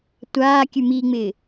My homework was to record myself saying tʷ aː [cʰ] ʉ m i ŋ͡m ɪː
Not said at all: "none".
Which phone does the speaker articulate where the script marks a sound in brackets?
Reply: kʲ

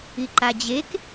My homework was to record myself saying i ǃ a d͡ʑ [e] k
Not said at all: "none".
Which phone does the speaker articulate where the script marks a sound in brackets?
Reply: e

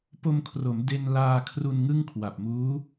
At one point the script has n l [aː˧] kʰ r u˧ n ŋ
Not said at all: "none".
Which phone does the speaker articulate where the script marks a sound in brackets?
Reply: aː˧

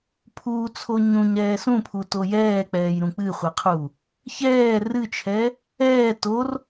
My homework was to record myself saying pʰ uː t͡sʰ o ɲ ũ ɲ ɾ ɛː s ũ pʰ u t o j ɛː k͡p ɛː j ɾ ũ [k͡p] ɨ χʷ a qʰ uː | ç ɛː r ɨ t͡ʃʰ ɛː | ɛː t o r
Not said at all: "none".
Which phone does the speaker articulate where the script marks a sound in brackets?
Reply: k͡p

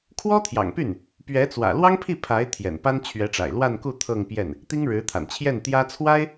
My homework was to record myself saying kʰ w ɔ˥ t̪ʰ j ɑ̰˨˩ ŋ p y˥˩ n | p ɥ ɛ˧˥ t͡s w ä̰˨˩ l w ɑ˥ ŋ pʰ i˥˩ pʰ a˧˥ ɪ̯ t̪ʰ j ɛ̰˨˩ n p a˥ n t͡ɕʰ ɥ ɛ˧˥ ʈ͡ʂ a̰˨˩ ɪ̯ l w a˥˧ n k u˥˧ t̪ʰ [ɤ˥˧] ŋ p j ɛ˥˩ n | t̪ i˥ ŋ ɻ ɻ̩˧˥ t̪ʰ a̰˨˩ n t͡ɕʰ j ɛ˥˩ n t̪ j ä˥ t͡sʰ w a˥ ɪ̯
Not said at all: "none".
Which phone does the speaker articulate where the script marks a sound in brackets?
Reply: ɤ˥˧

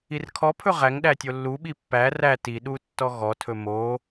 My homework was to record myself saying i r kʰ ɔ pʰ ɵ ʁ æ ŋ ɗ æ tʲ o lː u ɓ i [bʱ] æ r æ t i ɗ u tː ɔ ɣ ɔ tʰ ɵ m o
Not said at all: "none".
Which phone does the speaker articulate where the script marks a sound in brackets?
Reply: pː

